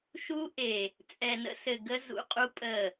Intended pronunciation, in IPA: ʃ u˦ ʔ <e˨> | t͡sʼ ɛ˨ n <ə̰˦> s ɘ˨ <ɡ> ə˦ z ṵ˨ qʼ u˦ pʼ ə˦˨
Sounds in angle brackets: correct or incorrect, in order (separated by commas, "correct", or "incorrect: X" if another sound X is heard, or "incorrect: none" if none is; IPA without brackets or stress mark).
correct, correct, correct